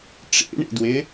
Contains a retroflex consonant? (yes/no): yes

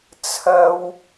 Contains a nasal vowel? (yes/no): no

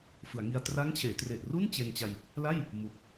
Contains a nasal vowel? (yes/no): no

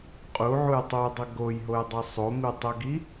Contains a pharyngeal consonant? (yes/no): yes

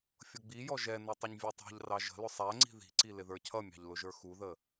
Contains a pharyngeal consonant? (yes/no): no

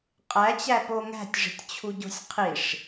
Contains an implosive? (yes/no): no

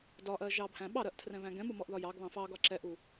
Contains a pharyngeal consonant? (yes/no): no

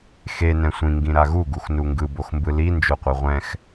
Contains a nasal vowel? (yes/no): yes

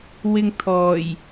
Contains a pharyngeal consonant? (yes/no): no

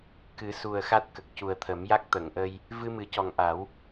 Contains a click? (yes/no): no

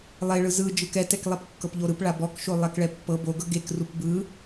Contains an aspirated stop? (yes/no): no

